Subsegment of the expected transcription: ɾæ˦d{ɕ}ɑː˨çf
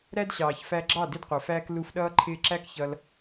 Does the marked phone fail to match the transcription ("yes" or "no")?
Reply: no